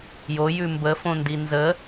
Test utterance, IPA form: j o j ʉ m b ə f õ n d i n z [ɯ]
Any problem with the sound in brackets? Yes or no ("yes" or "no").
yes